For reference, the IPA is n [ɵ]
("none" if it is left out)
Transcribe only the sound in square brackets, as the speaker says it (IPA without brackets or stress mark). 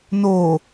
o